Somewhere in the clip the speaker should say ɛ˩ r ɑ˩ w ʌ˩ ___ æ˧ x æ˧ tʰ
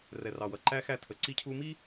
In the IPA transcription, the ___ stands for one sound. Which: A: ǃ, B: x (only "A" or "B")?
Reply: A